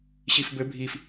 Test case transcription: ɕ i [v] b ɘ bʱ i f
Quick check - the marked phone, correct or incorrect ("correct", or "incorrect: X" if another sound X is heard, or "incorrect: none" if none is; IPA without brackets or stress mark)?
incorrect: f